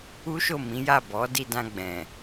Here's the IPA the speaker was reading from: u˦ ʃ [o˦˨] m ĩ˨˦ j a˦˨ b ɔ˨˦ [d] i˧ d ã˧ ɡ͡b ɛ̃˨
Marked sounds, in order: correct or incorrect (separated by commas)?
correct, correct